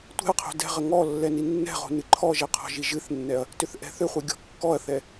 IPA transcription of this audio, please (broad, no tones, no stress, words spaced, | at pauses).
tʷɛ̤ɐ̯qʰo̤ dɛ̤ʁə ŋɔlːɛ ninːɛ̤ʁo̤ nɨǃʰɔʒɛ qʰɔ̤ʒiʒɨθnːɛɐ̯ | tʏθʔɛ̤θʏχʷɛ ɡʲɔ̤kːɔɐ̯θɛ